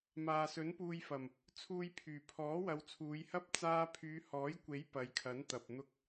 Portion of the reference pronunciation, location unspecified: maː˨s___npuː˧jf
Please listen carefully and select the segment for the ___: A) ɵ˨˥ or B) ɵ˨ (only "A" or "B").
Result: A